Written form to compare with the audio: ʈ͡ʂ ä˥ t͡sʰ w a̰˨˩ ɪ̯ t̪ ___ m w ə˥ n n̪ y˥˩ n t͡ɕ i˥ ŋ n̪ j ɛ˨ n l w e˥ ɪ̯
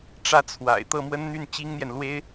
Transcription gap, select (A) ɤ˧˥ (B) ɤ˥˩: B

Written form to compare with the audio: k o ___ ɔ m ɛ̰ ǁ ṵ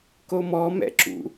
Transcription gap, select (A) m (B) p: A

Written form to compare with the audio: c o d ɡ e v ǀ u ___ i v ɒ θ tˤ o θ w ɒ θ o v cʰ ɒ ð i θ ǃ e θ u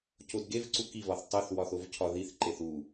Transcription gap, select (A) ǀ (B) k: B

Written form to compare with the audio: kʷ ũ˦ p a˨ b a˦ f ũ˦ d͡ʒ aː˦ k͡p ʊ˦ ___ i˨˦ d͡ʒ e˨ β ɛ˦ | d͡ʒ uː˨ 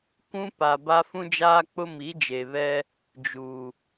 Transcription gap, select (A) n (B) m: B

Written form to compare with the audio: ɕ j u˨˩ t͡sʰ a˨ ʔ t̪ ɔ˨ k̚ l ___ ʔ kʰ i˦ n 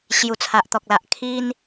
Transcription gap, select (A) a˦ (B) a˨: B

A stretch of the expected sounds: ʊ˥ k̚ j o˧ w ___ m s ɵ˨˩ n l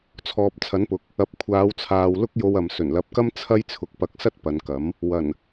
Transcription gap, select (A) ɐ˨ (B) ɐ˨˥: A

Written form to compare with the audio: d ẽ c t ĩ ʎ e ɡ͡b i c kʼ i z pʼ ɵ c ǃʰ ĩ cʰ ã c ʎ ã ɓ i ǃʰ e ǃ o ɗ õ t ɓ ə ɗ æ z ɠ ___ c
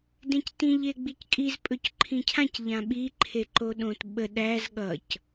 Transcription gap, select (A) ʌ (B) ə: A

